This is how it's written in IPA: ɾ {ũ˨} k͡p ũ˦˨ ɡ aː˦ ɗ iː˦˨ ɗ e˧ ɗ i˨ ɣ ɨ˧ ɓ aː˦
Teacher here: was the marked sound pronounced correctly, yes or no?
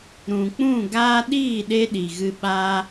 yes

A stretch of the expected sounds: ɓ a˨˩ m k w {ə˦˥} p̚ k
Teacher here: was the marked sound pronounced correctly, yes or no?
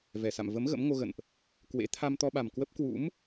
yes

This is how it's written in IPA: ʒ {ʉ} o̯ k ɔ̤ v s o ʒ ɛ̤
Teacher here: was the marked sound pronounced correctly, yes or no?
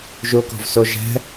no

